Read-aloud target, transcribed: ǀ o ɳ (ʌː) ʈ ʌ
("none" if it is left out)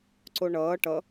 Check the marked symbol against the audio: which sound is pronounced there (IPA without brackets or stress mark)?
ʌː